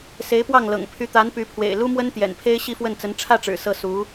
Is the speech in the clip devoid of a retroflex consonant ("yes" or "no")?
no